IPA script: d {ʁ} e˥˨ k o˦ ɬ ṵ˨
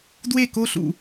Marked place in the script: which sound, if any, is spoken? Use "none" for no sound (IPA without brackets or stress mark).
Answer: w